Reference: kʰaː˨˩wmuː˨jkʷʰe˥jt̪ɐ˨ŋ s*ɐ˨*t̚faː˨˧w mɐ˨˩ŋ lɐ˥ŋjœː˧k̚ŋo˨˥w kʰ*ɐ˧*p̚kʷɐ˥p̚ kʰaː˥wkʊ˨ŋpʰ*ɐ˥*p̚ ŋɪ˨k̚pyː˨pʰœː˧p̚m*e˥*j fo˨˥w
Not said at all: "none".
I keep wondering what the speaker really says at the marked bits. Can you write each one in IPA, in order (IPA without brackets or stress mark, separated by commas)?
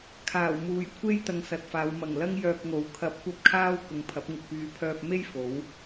ɐ˨, ɐ˧, ɐ˨˥, e˥